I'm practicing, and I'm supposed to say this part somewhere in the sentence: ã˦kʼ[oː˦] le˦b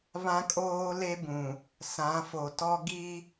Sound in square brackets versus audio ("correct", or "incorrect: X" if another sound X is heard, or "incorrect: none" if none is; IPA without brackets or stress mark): correct